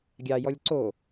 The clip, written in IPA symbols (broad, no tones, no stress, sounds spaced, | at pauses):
ɡʲ ɑ j ɔ lʲ ǀ o